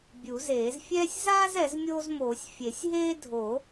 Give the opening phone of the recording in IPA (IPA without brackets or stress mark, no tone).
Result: bʲ